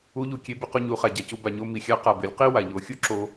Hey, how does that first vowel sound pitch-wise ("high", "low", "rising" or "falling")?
rising